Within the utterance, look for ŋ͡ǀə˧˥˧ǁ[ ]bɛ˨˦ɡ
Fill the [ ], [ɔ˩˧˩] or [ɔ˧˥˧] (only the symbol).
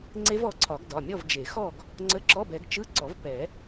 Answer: ɔ˧˥˧